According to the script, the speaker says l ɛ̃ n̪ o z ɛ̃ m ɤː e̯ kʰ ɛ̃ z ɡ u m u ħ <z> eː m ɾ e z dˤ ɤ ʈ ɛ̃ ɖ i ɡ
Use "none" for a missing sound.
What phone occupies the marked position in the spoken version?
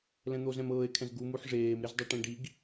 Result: ʐ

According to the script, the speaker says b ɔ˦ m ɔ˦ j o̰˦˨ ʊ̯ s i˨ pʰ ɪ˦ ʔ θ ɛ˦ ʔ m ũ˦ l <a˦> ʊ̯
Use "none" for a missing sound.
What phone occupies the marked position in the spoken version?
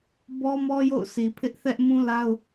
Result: a˦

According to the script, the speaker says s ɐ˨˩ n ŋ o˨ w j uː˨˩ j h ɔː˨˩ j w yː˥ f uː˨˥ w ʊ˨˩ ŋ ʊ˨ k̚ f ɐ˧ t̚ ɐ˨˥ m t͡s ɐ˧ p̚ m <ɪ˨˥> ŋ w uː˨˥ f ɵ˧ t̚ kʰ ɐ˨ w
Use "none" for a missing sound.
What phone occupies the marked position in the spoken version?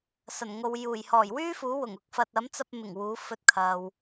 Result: ɪ˨˩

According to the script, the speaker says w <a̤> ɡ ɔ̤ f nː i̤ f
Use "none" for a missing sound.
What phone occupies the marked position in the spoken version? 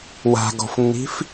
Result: a̤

